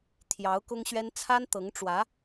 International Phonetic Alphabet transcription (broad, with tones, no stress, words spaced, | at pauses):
t̪ʰjɑ˧˥ʊ̯kʊ˥ŋɕɥɛ˥n t͡sʰa˥nt̪ɤ˧˥ŋʈ͡ʂwä˧˥